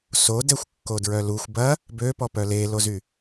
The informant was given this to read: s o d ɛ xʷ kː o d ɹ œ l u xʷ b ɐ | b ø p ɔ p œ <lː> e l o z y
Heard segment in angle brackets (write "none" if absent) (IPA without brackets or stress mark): l